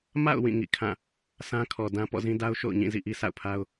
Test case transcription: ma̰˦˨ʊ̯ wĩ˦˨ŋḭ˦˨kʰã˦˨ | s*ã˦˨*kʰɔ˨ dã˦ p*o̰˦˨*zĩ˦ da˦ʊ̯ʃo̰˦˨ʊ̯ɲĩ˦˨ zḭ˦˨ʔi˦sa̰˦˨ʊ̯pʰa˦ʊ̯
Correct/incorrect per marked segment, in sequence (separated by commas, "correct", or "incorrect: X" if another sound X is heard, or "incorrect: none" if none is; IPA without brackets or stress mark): incorrect: ã˦, incorrect: ɔ̰˦˨